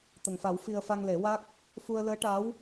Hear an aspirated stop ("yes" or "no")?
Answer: no